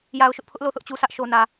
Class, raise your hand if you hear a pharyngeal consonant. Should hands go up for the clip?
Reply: no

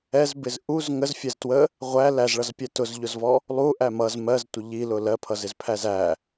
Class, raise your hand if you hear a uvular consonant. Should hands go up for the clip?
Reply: yes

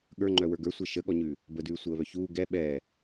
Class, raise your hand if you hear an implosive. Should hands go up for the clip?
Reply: yes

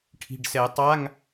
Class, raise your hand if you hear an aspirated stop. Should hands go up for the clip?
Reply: yes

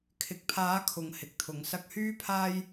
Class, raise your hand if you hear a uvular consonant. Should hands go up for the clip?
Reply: no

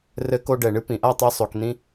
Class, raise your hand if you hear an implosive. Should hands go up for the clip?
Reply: no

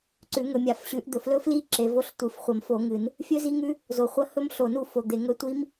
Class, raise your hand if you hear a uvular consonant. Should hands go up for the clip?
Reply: yes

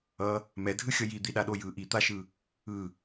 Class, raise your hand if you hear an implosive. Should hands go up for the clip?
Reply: yes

